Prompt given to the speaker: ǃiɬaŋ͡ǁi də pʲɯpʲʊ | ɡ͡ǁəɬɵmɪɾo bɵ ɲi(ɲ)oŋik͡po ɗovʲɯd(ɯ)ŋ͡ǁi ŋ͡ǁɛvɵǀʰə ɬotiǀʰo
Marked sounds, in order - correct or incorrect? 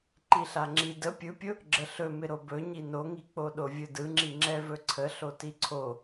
incorrect: n, correct

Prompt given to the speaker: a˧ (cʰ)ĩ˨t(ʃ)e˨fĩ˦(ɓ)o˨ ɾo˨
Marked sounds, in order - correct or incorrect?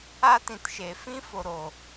incorrect: t, correct, incorrect: f

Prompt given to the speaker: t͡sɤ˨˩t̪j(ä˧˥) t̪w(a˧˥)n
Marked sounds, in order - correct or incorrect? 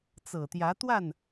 correct, incorrect: a˥˩

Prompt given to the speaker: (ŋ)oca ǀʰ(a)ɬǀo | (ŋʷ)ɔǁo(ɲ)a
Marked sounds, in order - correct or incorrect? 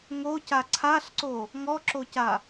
correct, correct, incorrect: ŋ, incorrect: c

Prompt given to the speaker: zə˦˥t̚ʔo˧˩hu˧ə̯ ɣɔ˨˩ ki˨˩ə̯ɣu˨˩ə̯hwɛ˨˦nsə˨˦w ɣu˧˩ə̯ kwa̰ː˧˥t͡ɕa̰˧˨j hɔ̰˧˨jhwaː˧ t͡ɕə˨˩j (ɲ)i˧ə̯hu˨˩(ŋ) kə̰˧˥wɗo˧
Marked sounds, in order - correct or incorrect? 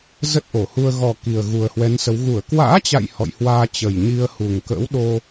correct, correct

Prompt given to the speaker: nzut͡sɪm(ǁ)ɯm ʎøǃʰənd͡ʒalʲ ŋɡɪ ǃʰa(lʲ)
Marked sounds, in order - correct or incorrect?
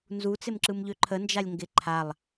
correct, incorrect: lˠ

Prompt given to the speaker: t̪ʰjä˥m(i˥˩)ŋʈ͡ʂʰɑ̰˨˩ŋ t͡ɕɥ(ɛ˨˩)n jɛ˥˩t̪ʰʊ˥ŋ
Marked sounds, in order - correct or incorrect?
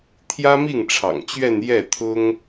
correct, incorrect: ɛ˥˧

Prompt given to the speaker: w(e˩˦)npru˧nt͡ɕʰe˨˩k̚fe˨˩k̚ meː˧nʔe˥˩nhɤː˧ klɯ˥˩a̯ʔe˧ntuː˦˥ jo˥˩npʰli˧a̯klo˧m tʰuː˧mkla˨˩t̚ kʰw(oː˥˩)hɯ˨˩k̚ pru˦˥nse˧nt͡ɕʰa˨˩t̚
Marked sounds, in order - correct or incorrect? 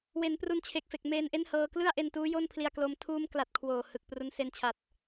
correct, incorrect: oː˨˩

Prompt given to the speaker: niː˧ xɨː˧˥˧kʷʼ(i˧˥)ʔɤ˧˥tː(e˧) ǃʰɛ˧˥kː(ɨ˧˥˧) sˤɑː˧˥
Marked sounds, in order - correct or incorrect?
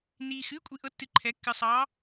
correct, incorrect: ɨ˧, incorrect: ɨ˧

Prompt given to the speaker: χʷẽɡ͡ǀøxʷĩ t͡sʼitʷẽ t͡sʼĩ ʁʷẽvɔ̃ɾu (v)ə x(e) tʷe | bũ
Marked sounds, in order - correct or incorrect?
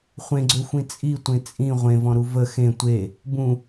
correct, incorrect: ẽ

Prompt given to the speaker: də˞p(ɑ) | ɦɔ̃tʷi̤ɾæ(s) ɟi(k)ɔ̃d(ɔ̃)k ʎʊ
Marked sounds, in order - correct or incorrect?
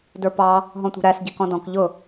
correct, correct, correct, correct

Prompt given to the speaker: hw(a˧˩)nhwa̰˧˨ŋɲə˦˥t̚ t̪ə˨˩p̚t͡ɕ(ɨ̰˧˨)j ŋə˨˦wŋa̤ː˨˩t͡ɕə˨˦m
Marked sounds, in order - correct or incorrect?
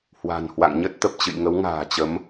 incorrect: a̤˨˩, correct

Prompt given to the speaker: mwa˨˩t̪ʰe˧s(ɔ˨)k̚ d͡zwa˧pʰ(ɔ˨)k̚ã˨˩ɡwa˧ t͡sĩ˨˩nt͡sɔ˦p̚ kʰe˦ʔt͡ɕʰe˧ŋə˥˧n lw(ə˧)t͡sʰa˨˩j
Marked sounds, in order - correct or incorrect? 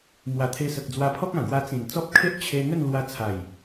incorrect: ə˨, incorrect: ɔ˦, incorrect: a˧

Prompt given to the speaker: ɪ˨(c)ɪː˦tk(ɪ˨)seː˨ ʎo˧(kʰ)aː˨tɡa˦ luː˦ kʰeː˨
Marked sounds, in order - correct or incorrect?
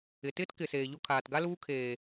incorrect: t, correct, correct

